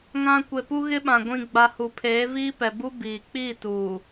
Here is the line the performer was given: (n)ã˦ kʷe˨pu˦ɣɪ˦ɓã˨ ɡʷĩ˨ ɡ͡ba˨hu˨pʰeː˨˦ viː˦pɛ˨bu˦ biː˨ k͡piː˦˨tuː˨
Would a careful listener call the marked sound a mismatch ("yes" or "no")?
yes